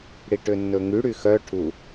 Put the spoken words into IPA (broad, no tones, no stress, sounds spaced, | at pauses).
ɽ i ʈ ø nː ɵ ŋ y ɽ y x œ ʈʰ u